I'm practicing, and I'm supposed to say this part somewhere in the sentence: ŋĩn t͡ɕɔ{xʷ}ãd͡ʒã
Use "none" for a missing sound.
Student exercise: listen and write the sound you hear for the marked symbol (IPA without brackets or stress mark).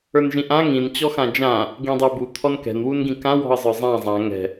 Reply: x